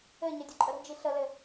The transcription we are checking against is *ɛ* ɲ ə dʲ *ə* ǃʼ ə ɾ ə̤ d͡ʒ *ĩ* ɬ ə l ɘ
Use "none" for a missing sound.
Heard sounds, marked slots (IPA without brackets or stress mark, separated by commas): ɘ, ə, i